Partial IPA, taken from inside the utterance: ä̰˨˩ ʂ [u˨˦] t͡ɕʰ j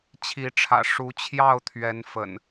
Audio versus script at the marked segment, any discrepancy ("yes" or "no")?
no